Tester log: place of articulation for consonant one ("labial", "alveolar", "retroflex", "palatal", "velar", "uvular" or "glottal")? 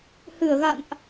glottal